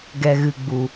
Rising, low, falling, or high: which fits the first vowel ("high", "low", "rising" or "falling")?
low